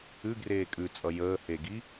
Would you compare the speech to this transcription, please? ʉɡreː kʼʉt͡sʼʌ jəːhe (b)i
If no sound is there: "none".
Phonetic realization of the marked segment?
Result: ɡ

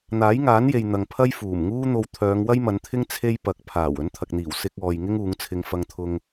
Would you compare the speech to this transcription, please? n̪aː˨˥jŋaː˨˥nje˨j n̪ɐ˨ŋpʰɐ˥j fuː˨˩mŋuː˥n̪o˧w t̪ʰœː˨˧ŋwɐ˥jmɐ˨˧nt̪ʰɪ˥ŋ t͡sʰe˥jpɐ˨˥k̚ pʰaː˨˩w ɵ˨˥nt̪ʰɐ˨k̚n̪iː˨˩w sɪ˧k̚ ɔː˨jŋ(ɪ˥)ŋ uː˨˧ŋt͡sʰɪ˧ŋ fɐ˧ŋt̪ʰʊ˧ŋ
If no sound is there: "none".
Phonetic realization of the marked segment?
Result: ɪ˥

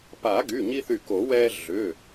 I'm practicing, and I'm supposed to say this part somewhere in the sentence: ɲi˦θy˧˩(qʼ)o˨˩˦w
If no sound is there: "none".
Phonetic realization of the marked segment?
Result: k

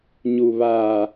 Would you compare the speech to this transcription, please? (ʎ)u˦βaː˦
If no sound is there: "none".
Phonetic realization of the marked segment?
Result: ɲ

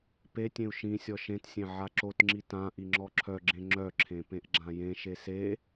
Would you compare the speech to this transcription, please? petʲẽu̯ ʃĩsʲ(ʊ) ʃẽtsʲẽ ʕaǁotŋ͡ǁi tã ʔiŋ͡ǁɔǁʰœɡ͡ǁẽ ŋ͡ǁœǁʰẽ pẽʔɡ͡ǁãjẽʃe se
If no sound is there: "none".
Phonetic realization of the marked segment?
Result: ɔ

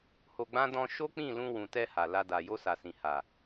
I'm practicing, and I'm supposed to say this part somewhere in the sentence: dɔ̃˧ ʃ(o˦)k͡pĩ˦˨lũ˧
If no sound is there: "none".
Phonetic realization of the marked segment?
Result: o˦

